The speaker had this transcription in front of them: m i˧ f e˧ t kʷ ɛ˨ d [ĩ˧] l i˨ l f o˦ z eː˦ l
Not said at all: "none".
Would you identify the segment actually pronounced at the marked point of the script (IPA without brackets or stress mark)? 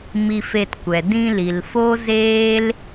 ĩ˧